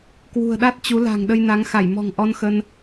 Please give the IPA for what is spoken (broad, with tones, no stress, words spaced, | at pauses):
kwṳ˨˩ə̯ɗa˦˥t̚ t͡ɕu˨˦la̤˨˩ŋ ɗə˧jna˨˦ŋ xa˧˩jmɔ̤˨˩ŋ ʔɔ˧nxə˧n